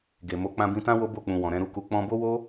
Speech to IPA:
ɡ e˨ m o˨˦ k͡p ã˧ b ĩ˧ t ã˦ w o˦ b o˦˨ k͡p ũ˨ w ɔ̃˨ ɾ ɛ̃˧ ɾ u˧ k u˧ k͡p ɔ̃˧ b o˦ w o˦

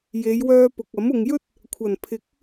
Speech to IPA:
j e˨˧ j w œː˧ p ʊ˨ k̚ ɐ˨˥ m ʊ˨ ŋ j ɵ˥ t̚ | kʷʰ ɐ˨˩ n pʰ ɪ˨˥ k̚

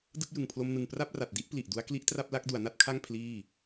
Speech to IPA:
d ɯ˥˩ k̚ j ɯ˨˩ ŋ pʰ l o˧ m n ɯ˨˩ ŋ p r a˥˩ p̚ r a˨˩ t̚ d i˦˥ ʔ p l i˨˩ ʔ d u˦˥ a̯ k l i˦˥ ʔ t r a˥˩ p̚ l a˦˥ k̚ d u˩˦ a̯ n a˦˥ t̚ kʰ a˥˩ ŋ pʰ l iː˥˩

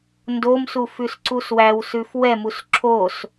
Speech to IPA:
n d o m s u f ʉ s ǀ u s w æ w s ʉ f w ɛ m u s ǁʰ o s

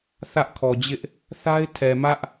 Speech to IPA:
θ ä˦ ʔ kʰ ɔ˨ d͡ʑ ɪ˦ ʔ | θ a˦ ɪ̯ tʰ ɛ˨ m ä˦ ʔ

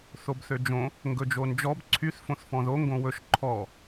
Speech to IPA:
θ o b θ ø d͡ʒ õ | ŋ ɡ ɵ d͡ʒ o n d͡ʒ ɔ b ǀʰ y θ f õ θ f ɔ̃ ð o ŋ ɡ õ w ɵ ʃ ǃʰ ɔ

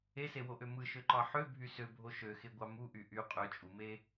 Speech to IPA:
e s e w o ʔ ø m ɯ ʃ ø ǃ ɑ ħ ø bʱ y s ø bʱ o ʃ ø x e ɡʷ ɑ m u ʔ y ʔ y qʼ ø t͡ʃʼ u m e

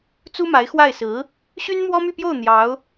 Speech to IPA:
t͡s u˥ m a˧˥ ɪ̯ x w a˥˩ ɪ̯ s ɹ̩˧˥ | ɕ y˥ n m w ɔ˥ m y˥˧ p j o˥˩ ʊ̯ n̪ j ɑ˧˥ ʊ̯

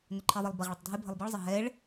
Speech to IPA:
n ʏ ǃʰ i ðˤ ɐ lˠ b ɐ ʁ ɭ ɐ tˤ dʱ e bʱ ə lˠ b i ɭ zˤ ə ɦ ɛ ɭ

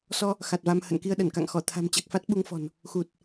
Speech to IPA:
s ɔ˧ | x a˨˩ t̚ v a˧ m h ə̰˧˨ n k i˧ ə̯ ɗ ə˧˩ n k a̰˧˨ ŋ x ɔ˧˩ t̪ʰ a̤˨˩ m t͡ɕ a˨˩ k̚ f a˦˥ t̚ ɓ u˧ ŋ f ɔ̤˨˩ n | x u˨˩ t̚

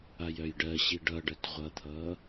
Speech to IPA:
a j œ j ɖ ɜ ɕ i ɖ ʌ ɖ ɜ t ʁʷ ʌ t̪ʰ ʌ

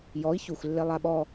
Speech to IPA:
j ɔ i̯ ç u x lː e lˠ a ɓ ɔ

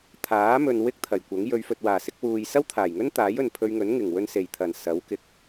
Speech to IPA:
t̪ʰ aː˨˥ m ɵ˨ n w ɪ˥ k̚ t̪ʰ ɐ˨˩ j kʷ ɐ˨˥ ŋ j ɵ˨˧ ɥ f ɵ˨ t̚ w aː˨˩ s ɪ˨˥ k̚ w uː˨ j s ɐ˥ w t̪ʰ aː˨˩ j ŋ ɵ˥ n t̪ aː˨˥ j ɵ˨ n pʰ ɵ˧ ɥ ŋ ɵ˨˥ n ŋ ɪ˨˩ ŋ w ɵ˧ n s e˨˩ j t̪ʰ ɐ˨˩ n s ɐ˨˥ w k ɪ˨˥ k̚

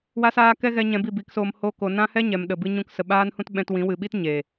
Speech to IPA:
w a˦ s aː˦ k ɛ˦ ɣ ɛ˧ ɲ ɛ̃˧ b i˦˨ b i˨˦ k s oː˧ m h o˦ k o˧ n ã˦ h ɛ˦ ɲ ɛ˨ m ɗ ə˨ b ɨ˦ ɲ ũ˦ k s ə˨ ɓ aː˦ n h ũ˦ t ɓ ɛ̃˧ t w ĩ˨˦ w ɨ˨ ɓ i˦ t ɲ e˨

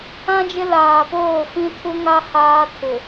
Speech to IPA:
ã˦ d͡ʒ ɪ˦ l aː˨ p oː˦˨ f ĩ˦ tʰ u˦ ŋ a˦ h aː˦ tʰ ɪ˨

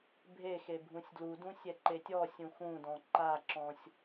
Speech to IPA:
bʱ e x e bʱ ũ sʲ d l u d ũ sʲ ɛ ǃ e tʲ ɔ sʲ ũ x ũ d ɔ̃ ǃ a ǁ ɔ̃ sʲ

